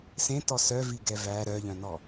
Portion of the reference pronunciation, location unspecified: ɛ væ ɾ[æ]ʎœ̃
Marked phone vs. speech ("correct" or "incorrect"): incorrect